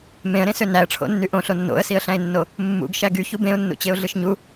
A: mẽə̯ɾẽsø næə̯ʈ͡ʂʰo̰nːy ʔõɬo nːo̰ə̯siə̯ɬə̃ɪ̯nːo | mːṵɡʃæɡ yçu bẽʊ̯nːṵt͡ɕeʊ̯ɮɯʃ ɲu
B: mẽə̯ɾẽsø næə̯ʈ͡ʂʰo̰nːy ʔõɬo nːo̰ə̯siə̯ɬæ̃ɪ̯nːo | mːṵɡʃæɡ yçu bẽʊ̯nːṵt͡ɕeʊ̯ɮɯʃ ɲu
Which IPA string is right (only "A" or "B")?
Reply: B